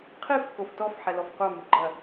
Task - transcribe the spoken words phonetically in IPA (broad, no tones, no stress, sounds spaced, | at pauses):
qʰ i f k o f t ɔ f ħ ɛ l ɔ f qʷ a m u ɡ͡ǃ ɐ